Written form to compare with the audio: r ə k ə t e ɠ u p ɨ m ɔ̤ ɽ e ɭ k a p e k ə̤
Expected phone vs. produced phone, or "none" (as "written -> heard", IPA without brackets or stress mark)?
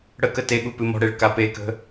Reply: r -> ɽ